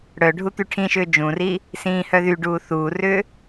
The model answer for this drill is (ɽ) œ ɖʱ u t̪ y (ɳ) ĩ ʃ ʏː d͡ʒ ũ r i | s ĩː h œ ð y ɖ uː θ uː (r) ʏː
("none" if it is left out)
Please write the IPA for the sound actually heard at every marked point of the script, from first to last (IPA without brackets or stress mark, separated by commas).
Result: ɽ, ʈʰ, r